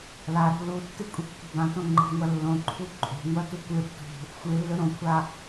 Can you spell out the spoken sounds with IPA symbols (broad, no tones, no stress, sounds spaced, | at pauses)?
l a ɾ o̤ l u tː ɨ kʷʼ i kː i̤ b ã t õ ŋ͡ǃ i̤ ŋʷ ɐ lː õ ǃʰ u ǃʼ o̤ ŋʷ ɐ t u kʷ ɨ ɾ ṳ t ṳ | xʷ ɨ lː ɵ ɾ õ kʷʰ a